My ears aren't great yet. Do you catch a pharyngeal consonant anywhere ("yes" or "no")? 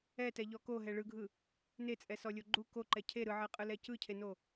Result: yes